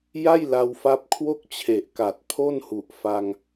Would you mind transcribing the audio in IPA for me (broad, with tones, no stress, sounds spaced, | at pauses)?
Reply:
j a˥˩ j l a˧ w f a˦˥ p̚ kʰ w o˥˩ k̚ t͡ɕʰ e˨˩ ʔ k a˨˩ t̚ pʰ o˥˩ n h u˨˩ ʔ f a˧ ŋ